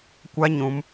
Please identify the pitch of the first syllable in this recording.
high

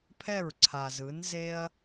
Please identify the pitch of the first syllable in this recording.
falling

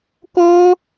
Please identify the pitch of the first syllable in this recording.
high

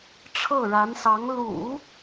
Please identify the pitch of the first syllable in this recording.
falling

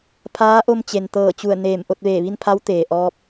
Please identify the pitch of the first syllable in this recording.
rising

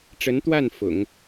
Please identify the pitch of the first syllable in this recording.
rising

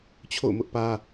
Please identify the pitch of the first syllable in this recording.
falling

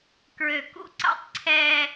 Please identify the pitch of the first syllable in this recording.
low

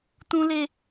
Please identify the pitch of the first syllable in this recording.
high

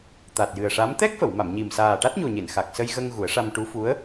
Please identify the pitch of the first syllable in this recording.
low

